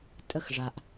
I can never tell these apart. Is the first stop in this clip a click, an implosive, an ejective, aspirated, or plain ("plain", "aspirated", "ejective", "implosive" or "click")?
ejective